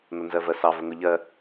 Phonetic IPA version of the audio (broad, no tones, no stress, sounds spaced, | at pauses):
n ʊ n z ɜ v ɜ s ɑ v ə ŋ ʊ ʎ ɜ